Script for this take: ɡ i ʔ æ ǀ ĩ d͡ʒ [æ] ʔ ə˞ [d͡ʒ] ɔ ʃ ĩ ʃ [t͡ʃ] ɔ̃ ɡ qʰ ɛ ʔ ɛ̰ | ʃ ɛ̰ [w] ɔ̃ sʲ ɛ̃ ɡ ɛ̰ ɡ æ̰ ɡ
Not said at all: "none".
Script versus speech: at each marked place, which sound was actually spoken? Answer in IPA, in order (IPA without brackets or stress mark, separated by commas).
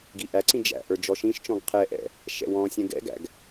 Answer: æ̰, d͡ʒ, t͡ʃ, w